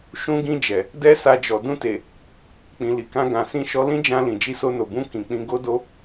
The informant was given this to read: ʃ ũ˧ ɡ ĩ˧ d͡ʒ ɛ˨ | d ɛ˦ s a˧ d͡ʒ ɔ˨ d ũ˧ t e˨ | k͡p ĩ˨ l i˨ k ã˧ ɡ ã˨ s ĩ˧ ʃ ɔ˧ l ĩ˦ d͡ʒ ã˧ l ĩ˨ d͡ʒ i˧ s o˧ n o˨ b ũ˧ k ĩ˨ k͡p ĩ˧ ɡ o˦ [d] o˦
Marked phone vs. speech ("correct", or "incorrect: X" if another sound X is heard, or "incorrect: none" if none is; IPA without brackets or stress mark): correct